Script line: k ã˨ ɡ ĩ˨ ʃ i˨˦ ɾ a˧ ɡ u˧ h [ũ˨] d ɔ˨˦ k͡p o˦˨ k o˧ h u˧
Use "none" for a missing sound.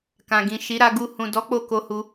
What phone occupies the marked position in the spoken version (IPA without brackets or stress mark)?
ũ˨